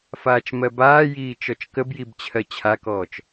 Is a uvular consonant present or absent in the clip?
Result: absent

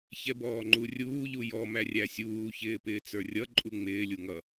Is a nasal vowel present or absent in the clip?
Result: absent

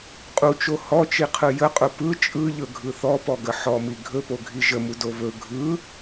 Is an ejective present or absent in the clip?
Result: present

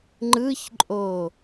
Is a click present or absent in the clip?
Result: present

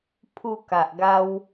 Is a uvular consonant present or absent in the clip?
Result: absent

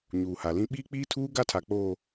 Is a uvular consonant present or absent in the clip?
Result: absent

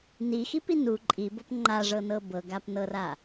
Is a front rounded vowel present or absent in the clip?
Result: absent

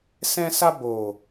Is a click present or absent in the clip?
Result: absent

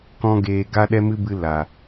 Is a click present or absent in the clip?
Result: absent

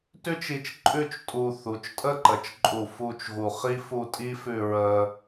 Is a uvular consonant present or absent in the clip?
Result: present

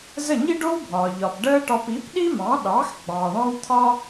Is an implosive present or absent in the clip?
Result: present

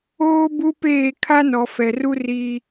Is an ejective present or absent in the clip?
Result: absent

